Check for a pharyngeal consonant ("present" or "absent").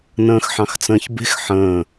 present